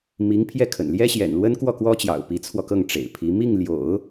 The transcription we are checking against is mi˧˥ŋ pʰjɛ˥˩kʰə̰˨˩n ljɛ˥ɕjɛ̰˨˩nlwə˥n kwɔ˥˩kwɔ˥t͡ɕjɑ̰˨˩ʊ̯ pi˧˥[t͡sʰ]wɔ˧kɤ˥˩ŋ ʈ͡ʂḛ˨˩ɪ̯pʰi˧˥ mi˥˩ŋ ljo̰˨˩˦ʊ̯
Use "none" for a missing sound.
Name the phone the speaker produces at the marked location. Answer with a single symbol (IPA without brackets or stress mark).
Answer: t͡sʰ